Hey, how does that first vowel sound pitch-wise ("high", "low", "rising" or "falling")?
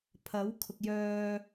rising